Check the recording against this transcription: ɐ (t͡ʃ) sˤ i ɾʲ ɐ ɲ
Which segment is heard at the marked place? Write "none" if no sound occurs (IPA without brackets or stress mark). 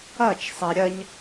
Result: t͡ʃ